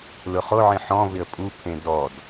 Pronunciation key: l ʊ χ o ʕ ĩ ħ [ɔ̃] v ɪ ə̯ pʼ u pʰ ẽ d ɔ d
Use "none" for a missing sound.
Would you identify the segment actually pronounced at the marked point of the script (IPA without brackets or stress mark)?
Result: ɔ̃